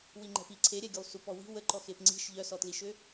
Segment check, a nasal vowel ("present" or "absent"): absent